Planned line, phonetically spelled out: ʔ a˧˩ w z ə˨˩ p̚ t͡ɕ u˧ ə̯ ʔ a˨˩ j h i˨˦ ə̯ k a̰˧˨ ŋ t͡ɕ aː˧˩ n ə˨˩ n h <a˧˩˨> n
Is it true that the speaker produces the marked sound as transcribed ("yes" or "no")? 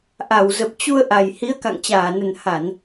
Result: yes